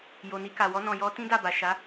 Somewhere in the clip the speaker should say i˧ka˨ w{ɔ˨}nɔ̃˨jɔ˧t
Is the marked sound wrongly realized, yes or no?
yes